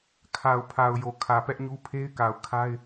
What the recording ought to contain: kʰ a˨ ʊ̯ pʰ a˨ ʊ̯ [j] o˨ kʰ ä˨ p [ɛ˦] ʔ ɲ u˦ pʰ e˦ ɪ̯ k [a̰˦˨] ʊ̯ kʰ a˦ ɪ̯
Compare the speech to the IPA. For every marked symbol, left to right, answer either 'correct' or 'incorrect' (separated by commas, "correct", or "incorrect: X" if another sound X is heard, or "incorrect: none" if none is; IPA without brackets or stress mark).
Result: correct, correct, incorrect: a˨